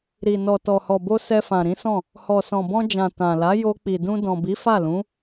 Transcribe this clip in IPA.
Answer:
ɾ i˨ n ɔ˨ t ɔ˨ h ɔ˨ b o˧ s ɛ˧ f ã˨ ɾ ĩ˨˦ s ɔ̃˦˨ | h ɔ˨ s ɔ̃˨ b ɔ̃˧ d͡ʒ ã˨ t ã˨ l a˨˦ j o˧ k͡p i˨ d ũ˧ d ɔ̃˨ b i˨˦ f a˦˨ l ũ˨˦

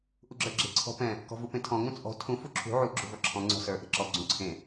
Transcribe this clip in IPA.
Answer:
ʔ u ɡ͡ǁ ə˞ ɡ͡ǁ e̤ ǀʰ ɔ̤ p ɛ̃ | k ɔ̤ v u p ẽ tʰ ɔ̃ ŋ ũ t͡sʼ ɔ̤ tʰ ũ f u ǁʰ ṳ ʕ u ɡ͡ǁ ṳ v ɔ ǁʰ ɔ̃ ŋ͡ǀ ɔ̤ s ə˞ ʔ e̤ ǁ ɔ ɡ͡ǀ ũ ǀʰ ẽ

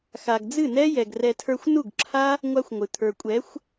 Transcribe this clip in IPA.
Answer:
x a˨ ɡ d͡z ɨ˦˨ n ɛ˦ j ɛ˨ ɡ r ɛ˧ tʰ ə˞˧ xʷ n u˦˨ ɡ ǁʰ a˦ | ŋʷ a˦ xʷ ŋʷ ɨ˨ t̪ʰ ə˞˨ kʷʼ ɛ˨˦ xʷ

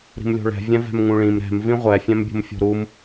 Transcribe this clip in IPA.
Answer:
ɾ i̤ m lʲ o̤ ɭ ɛ̤ vʲ ɛ̃ v ɛ̤ m ŋ ũ ɭ ĩ m ɾ ɛ̤ m v ĩ ʁʷ ɛ fʲ ɛ̃ m bʲ ṳ m fʲ o̤ ɾ u m

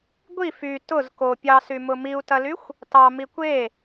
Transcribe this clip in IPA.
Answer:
ɡʷ i f y t ʊ z k o pʲ ɑ s y m ʊ m i u̯ t ɐ l y xʷ | t ɑ m i kʷ e

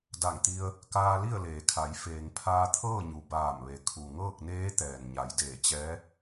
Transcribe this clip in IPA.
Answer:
d a˧˩ ŋ t̪ i˧ ə̯ | k aː˧ l i˥˨ ə̯ l eː˩ kʰ a˩˧ j f eː˩ ŋ pʰ aː˧ t̪ʰ ɤː˥˨ ɲ u˩ b aː˧˩ m ʋ e˩˧ kʰ u˩ ŋ ɤː˥˨ k̚ n eː˧˥ t̪ ɛː˩ n ɲ a˩˧ j d eː˧˩ t͡ɕ ɛː˧˥

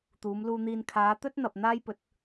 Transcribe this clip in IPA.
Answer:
t̪ uː˨˧ m l uː˧ n̪ iː˧ n kʰ aː˨˧ t̪ ɵ˥ t̚ n̪ ɐ˨ p̚ n̪ aː˥ j p ɵ˨˥ t̚

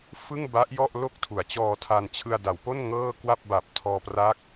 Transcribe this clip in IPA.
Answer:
f ɯ˥˩ ŋ b a˦˥ ʔ j ɔ˥˩ ʔ l o˥˩ k̚ tʰ u˩˦ a̯ t͡ɕ ɔː˧ tʰ a˧ n t͡ɕʰ ɯ˧ a̯ d a˩˦ w p o˥˩ n ŋ ɤː˥˩ k w a˥˩ p̚ b a˨˩ p̚ tʰ ɔː˧ p r a˦˥ k̚

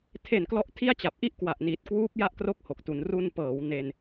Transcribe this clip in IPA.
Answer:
tʰ e˨˩ n k l ɔ˦˥ ʔ tʰ i˥˩ a̯ t͡ɕ a˨˩ p̚ ʔ i˥˩ ʔ k w a˨˩ ʔ n iː˨˩ t̚ k w uː˦˥ p̚ j a˥˩ ʔ k r o˥˩ k̚ h o˨˩ k̚ t u˩˦ n r u˧ n p ɤː˩˦ w n e˧ n

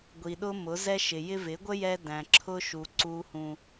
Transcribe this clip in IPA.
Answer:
ɡʷ i˨ ɗ ʊ˦ m ʊ˨˦ z ɛ˦ ʃ ɪ˨ j ɪ˧ v ɪ˨˦ ɡʷ ə˦ j ɛ˧ d æ̃˨ ǁʰ ʊ˧ ʃ u˨ ǀ u˨ h ũ˨

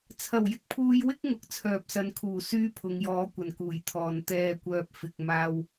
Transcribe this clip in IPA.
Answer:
t͡sʰ ɐ˨˩ w j ɪ˧ k̚ pʰ uː˧ j w ɪ˥ k̚ ŋ ʊ˨˥ k̚ t͡sʰ œː˨ p̚ s ɐ˨˧ n kʰ uː˨˩ s yː˥ pʰ ʊ˨˧ ŋ j ɔː˨˧ kʷ ɐ˨˩ n k uː˨˩ j t̪ʰ ɔː˨ n t̪ ɛː˨ kʷ œː˨ p̚ f ɪ˨ k̚ m aː˥ w

